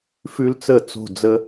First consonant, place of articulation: labial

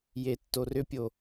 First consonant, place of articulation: palatal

